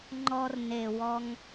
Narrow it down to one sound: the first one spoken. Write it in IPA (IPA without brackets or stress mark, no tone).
ŋ͡ǃ